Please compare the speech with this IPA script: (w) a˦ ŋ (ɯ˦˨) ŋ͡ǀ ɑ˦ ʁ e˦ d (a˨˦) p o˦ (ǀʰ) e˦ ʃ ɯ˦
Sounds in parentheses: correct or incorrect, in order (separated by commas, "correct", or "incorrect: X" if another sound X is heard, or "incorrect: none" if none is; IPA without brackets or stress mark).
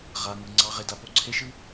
incorrect: ʁ, incorrect: ɯ˦, incorrect: a˦, correct